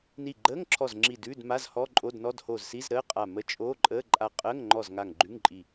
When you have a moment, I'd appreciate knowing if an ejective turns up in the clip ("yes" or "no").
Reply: yes